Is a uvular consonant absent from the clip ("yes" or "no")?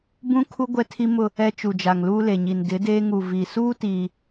yes